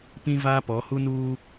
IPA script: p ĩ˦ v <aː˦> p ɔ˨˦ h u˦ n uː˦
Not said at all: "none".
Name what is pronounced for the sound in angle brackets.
aː˦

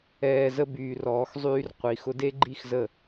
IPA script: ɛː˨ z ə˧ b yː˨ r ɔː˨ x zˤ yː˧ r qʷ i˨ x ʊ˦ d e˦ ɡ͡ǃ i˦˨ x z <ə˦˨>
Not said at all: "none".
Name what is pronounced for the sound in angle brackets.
ə˦˨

